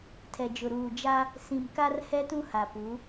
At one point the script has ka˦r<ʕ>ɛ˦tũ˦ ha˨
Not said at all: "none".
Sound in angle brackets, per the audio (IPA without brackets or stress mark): h